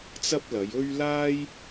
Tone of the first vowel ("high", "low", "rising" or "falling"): high